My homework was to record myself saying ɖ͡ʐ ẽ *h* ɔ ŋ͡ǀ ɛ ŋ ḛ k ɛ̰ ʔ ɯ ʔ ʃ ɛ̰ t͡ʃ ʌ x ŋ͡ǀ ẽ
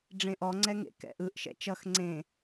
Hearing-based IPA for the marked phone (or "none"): ʔ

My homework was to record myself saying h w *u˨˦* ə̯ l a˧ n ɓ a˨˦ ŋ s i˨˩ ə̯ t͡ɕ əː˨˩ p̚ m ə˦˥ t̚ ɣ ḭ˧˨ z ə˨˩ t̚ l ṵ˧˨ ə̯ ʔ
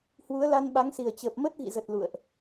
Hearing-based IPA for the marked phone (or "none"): u˨˦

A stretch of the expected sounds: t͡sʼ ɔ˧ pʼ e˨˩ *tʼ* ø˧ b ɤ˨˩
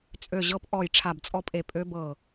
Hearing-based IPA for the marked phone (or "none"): pʼ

